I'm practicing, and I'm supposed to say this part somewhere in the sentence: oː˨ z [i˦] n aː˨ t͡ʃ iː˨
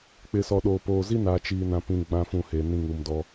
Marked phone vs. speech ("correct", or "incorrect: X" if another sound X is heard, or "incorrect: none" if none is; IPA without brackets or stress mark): correct